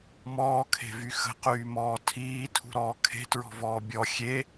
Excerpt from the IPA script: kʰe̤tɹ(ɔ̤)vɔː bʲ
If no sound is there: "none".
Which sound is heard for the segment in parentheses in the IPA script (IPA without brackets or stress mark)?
ɔ̤